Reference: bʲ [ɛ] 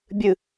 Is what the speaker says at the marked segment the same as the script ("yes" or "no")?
no